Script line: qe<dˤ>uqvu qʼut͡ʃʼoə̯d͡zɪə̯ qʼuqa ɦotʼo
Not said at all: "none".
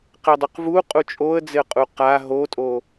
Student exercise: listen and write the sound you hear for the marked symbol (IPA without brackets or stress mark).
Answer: dˤ